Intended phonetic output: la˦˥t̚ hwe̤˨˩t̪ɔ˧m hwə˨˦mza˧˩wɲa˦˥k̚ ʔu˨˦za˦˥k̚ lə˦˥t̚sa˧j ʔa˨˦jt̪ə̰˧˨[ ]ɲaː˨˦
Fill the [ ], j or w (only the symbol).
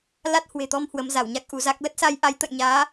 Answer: j